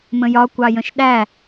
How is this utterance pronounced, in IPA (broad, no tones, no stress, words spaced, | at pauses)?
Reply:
mə̃jɒ kʷɑjə̃ʃɗæ